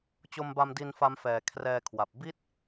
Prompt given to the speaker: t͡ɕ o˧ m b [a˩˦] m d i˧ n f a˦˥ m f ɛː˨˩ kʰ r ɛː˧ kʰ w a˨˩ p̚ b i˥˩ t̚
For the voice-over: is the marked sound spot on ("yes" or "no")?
no